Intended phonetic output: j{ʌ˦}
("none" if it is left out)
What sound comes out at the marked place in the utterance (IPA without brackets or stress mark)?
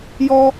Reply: ɔ˦